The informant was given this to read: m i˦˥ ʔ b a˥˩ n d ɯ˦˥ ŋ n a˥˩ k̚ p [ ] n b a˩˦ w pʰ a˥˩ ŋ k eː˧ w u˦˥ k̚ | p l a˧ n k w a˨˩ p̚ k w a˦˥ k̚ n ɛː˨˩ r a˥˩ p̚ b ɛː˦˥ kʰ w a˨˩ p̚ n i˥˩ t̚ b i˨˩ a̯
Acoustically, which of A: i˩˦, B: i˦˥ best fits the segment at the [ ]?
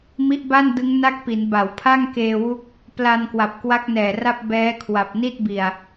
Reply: A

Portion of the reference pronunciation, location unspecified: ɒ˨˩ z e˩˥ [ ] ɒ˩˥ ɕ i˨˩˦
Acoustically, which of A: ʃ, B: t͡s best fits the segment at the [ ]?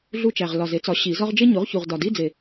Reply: B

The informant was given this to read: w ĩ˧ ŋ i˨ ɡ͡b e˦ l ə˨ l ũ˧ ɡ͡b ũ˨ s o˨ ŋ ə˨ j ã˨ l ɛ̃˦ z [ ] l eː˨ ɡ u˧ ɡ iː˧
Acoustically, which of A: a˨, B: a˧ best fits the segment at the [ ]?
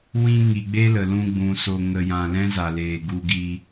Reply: A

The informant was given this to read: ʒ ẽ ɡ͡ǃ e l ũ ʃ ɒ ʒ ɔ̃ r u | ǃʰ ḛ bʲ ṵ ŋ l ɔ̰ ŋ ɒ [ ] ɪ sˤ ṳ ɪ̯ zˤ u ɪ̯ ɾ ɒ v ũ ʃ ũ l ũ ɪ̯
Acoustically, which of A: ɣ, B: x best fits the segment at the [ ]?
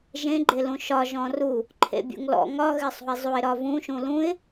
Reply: A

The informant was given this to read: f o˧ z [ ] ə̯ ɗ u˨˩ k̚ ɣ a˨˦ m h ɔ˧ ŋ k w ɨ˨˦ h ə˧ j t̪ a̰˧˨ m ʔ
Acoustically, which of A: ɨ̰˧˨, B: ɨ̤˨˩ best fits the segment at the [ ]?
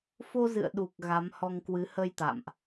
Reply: A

